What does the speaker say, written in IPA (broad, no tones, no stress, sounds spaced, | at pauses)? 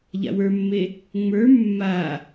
ʎ a̰ w ə˞ mː e | ŋ͡m ə˞ mː a